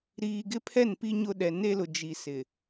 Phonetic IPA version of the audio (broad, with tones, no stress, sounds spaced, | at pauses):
ɾ iː˨ ɡ ɪ˦ pʰ ɛ˦˨ n p i˦ ɲ ʊ˦ ɗ ɛ˨ n e˦ l ʊ˨ d͡ʒ i˨ s ɪ˨